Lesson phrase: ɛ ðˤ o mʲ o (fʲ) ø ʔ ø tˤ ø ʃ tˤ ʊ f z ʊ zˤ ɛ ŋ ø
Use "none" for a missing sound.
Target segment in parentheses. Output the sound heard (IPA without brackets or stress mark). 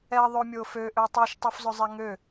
f